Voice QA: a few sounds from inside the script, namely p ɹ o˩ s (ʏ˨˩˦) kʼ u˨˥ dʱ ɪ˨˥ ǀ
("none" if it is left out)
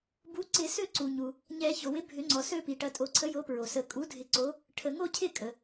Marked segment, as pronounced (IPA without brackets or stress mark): ə˨˩˦